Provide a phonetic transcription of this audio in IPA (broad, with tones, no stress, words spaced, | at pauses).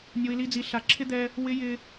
nʲo˨i̯li˨d͡zi˨ ɬa˨ǁʰɪ˦d̪ɛ˦ | wɪ˦jɪ˦